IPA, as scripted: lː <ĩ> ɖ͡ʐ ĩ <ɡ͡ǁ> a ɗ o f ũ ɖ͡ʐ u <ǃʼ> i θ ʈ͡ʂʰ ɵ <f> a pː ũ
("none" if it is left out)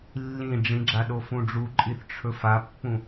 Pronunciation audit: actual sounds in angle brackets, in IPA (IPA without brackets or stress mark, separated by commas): ĩ, ɡ͡ǁ, ǃʼ, f